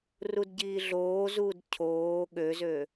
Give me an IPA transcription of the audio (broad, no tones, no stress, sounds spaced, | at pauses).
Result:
r u d ɟ iː ɮ oː z uː d cʰ oː ɠ ø z ø